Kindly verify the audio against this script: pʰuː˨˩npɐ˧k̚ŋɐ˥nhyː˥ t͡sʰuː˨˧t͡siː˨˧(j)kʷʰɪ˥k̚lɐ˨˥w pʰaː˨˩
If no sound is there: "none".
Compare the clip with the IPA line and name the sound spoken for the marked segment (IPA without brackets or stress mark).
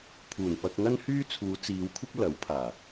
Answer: w